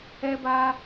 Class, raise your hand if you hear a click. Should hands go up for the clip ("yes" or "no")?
no